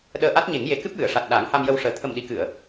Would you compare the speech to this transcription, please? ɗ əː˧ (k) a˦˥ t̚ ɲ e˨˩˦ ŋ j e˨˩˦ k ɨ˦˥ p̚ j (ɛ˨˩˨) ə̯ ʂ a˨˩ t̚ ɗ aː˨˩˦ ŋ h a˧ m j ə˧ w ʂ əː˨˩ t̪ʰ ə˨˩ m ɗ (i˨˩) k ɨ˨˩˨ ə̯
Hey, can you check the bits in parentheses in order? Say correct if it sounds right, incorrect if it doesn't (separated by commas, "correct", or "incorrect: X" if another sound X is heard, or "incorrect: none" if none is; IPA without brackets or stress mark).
incorrect: ʔ, incorrect: ɨ˨˩˨, correct